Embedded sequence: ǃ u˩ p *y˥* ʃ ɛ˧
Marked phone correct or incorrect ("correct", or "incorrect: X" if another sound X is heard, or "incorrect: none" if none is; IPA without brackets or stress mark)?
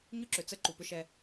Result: incorrect: ʏ˥